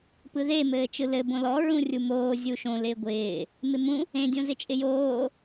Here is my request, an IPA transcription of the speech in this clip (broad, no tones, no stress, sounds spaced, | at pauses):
p ɯ ð e m ɘː t͡ʃ ɯ l ɘ b õ l ɔ ɹ ũ rʲ u m oː zʲ u ʃ õ l ɪː ɡʷ ɪː | m ɪ m ũ | ẽ dʲ õ z ɪ t͡ʃʼ ɪ j oː